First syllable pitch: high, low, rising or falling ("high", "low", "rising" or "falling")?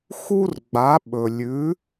high